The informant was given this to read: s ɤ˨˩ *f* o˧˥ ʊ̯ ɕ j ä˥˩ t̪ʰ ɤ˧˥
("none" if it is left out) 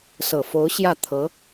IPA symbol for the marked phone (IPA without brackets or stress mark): f